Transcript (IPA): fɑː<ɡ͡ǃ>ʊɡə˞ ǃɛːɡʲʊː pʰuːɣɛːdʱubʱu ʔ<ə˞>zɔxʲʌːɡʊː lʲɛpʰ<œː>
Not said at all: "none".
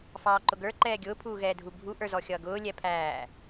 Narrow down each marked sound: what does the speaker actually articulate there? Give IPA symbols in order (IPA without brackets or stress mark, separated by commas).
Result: ǃ, ə˞, æː